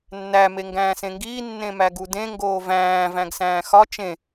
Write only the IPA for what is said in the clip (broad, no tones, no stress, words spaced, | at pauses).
nːæ meŋɡæ̃ːsẽŋɡiː nːẽmæɡudẽ ŋɡoːvæ̃ː væ̃ɡsæ̃ːxɒ t͡ʃẽ